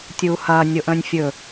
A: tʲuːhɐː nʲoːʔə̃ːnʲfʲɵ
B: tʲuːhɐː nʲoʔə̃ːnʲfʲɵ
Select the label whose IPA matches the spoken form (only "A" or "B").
B